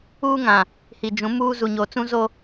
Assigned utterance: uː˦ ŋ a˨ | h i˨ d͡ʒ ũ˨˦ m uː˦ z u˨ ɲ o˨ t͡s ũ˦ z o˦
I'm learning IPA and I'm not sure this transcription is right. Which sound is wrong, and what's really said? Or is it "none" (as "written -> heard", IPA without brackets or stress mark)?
a˨ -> ã˨